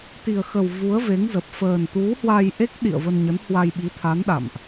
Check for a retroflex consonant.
absent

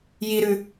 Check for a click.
absent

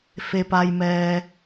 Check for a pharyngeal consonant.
absent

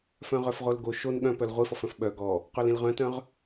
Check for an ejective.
absent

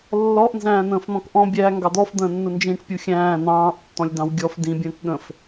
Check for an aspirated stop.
absent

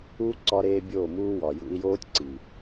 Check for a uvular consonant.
absent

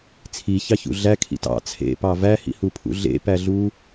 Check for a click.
absent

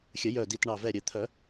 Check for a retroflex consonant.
present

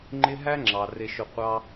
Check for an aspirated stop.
absent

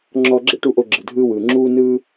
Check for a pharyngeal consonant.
absent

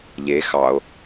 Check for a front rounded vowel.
absent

